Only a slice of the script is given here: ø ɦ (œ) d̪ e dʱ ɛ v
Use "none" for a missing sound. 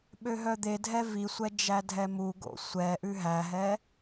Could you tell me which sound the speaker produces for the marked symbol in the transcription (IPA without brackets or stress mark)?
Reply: œ